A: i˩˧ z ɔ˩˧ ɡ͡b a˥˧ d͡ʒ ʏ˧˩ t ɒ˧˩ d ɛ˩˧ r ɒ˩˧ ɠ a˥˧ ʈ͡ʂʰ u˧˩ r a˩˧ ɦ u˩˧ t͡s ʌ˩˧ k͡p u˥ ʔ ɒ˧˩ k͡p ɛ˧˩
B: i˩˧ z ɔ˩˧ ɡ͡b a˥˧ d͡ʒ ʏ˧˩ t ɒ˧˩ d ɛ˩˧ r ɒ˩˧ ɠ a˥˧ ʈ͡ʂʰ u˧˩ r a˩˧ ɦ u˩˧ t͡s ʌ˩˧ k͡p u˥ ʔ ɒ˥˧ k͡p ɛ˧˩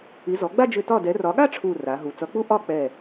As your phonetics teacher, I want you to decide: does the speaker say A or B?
B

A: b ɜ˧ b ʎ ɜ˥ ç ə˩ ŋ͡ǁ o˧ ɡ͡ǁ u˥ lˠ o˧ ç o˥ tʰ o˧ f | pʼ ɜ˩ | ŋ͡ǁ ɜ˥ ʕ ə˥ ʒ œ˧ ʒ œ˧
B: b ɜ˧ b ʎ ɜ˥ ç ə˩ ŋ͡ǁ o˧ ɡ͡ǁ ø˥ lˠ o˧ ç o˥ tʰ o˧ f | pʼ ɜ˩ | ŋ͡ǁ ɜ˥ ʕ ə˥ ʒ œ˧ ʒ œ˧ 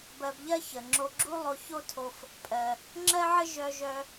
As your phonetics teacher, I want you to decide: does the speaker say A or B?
A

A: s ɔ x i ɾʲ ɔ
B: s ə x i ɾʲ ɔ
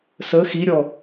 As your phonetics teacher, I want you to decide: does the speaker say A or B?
B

